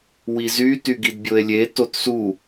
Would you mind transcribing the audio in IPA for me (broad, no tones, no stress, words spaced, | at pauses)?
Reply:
wizy tyɡidbʲoe̯lʲe totsu